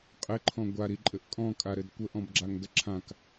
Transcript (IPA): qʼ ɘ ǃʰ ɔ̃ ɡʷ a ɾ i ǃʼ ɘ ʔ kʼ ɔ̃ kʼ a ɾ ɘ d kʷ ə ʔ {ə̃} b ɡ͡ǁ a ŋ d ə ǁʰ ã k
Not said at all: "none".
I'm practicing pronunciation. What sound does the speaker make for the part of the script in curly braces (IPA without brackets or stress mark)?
ɔ̃